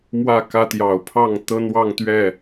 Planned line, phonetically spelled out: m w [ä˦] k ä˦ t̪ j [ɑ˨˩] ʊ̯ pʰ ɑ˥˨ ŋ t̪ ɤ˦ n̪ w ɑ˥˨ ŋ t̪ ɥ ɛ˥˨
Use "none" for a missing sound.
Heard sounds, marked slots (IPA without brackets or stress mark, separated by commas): ä˥˨, ɑ˨˩